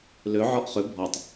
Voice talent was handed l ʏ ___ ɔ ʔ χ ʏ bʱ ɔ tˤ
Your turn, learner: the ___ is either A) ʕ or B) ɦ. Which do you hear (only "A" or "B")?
A